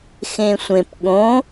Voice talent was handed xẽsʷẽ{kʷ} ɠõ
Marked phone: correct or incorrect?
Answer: incorrect